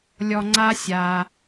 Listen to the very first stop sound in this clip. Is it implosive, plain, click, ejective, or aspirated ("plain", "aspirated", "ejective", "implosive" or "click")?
click